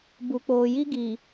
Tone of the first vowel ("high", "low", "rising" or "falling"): low